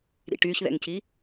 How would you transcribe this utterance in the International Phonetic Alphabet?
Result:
ɾ ḭ ʈ y ç ð ɛ̰ ŋ c i

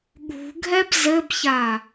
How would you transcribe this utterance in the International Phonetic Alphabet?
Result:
ɠ ṳ ɡʱ ɛ b z ɘ b ç a

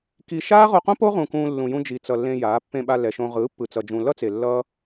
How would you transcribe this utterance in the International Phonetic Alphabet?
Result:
k i˧ ʃ aː˦ ʁ o˧ q õ˦ p o˦ ʁ ũ˧ k ũː˧ lː ũ˨ j ũ˧ d͡ʒ i˨ t͡s ʌ˨ lː ẽ˧ j aː˨˦ pː ẽ˧ ɓ a˧ l ɛ˨ ʃ õ˧ ʁ ɯː˨˦ pː ɯ˨ t͡s ʌ˨ d͡ʒ ũ˨ l ʌ˦ t͡s e˨ lː ʌː˦

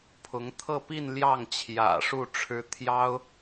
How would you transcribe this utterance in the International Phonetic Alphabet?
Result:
pʰ ʊ˧˥ ŋ t̪ʰ ɤ˥˧ p i˥˧ n l j ɑ˥˩ ŋ t͡ɕʰ j ä̰˨˩ ʂ u˥˩ ʈ͡ʂʰ ɻ̩˧˥ t̪ʰ j ɑ˥ ʊ̯

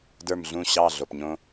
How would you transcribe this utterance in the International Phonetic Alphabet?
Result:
d ə˞˥˩ m ɮ ũ˥˩ ɕ ɑ˥˩ ɮ o˩ p ɲ õ˧

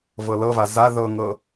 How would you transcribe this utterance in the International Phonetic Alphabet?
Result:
v ɤ l ɤ v a z a ð ɤ ŋ ɤ

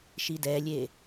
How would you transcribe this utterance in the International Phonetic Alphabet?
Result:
ʃ i d ɛ lʲ e

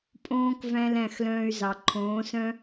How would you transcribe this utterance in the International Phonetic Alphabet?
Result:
pʼ õː˦ k v æ̃˦ l æ̃˦˨ x l œ̃ː˧ y̯ z ɑ˨ ǃʰ õː˨˦ s œ̃˦

